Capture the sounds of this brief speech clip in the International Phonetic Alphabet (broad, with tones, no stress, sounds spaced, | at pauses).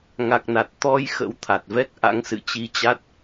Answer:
ŋ a˨˩ k̚ n a˨˩ t̚ t̪ ɔ˧ j x ə̰˧˥ w t̪ʰ a˨˩ t̚ v ɛ˦˥ k̚ ʔ a̰˧˥ ŋ s ɨ̰˧˨ t͡ɕ i˧ t͡ɕ a˦˥ t̚